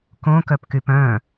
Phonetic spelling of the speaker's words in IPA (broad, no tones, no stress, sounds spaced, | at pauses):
k õ k œ p k y p œ̃